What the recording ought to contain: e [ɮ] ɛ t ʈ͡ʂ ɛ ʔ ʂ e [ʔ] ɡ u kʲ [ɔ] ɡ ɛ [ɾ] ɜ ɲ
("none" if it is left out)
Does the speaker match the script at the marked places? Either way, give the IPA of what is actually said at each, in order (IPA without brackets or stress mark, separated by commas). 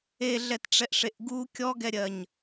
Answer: ɮ, ʔ, ɔ, ɾʲ